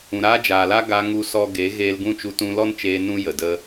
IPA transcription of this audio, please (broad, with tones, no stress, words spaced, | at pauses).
ũ˨ɾaː˦ d͡ʒaː˨la˦ ɡa˧ ŋu˦sɔ˦ ɡe˨˦ɣeː˧lɡũ˦˨ t͡ʃu˧tũ˧lɔ˦nt͡ʃeː˧ nũ˦ jə˨də˦